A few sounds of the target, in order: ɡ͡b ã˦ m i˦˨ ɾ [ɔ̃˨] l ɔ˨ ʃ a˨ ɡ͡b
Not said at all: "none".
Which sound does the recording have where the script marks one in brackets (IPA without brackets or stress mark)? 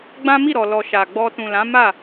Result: ɔ˨